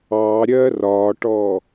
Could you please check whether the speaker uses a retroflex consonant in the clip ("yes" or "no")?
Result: yes